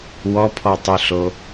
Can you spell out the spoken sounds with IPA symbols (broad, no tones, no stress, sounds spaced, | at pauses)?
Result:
w ɔ pʰ ɔ tˤ y ɬ o